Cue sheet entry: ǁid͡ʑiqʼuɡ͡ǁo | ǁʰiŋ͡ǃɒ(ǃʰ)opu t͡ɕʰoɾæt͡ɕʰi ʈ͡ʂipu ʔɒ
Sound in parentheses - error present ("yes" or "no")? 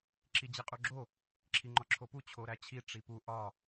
yes